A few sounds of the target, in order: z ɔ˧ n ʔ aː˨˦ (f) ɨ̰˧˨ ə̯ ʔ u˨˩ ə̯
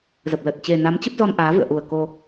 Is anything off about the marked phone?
yes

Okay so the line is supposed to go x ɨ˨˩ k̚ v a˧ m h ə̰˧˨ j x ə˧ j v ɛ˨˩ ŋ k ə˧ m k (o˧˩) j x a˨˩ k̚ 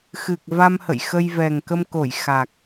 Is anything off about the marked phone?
no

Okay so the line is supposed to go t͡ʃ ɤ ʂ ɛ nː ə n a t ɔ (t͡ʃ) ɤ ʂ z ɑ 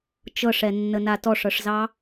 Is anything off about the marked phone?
yes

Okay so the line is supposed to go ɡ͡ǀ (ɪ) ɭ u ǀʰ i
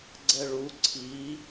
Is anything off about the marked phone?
yes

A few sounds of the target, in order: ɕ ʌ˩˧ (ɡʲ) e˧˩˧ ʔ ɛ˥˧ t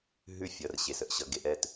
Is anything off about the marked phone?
yes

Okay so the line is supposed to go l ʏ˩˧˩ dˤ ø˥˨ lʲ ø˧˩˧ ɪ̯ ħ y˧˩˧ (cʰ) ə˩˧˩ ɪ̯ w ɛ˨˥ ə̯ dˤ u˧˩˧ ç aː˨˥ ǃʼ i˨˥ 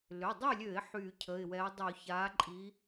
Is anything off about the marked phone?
no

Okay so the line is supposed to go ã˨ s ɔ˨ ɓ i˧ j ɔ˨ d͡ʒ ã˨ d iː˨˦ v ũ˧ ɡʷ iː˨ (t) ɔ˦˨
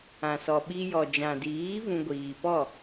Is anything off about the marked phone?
yes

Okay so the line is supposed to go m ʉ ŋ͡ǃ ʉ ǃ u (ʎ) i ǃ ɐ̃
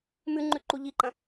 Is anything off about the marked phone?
no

